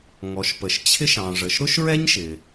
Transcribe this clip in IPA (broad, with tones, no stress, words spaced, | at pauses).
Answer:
ŋɔ˩ʃpə˩ʃ t͡ɕʰɪ˥ʃɑ̃˩ʐə˩ʃ ɾʊ˥ʃɹɛ˥ɲʃɪ˩